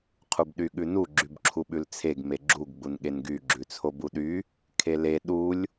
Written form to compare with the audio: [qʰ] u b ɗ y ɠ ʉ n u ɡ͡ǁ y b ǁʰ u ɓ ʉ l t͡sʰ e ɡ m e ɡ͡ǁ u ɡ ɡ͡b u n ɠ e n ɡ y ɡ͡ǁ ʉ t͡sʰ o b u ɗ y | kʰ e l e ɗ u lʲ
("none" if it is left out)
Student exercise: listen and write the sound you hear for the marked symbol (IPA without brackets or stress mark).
qʰ